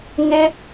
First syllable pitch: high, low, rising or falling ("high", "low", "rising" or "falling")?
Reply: high